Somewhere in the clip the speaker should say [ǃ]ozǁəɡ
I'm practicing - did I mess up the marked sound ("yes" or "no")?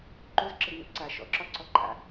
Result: no